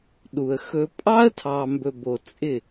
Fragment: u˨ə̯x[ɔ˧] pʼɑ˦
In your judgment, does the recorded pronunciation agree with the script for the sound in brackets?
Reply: no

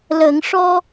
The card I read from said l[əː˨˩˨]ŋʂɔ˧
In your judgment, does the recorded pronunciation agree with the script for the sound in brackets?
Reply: yes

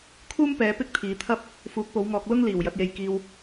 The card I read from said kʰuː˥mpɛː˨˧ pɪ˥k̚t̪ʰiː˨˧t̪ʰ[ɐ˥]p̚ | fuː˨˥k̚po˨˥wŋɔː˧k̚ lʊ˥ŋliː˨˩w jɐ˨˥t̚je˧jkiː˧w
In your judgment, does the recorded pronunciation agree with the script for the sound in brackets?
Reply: yes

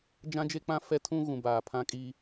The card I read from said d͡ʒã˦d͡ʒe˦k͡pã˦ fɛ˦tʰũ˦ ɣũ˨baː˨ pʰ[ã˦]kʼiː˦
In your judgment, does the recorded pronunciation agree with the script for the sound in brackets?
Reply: yes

